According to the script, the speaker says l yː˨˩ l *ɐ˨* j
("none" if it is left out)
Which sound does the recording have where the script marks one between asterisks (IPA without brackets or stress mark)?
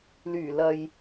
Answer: ɐ˨